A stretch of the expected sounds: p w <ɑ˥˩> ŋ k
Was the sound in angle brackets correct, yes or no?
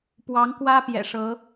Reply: no